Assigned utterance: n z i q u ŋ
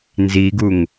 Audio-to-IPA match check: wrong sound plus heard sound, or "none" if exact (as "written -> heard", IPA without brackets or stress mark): q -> ɡ